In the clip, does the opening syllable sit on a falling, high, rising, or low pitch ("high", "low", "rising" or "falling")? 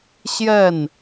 falling